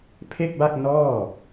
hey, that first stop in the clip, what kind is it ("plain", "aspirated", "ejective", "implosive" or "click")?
aspirated